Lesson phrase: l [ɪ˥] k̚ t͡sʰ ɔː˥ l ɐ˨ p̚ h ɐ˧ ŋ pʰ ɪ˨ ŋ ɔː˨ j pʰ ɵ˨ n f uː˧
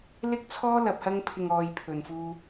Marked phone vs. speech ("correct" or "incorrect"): correct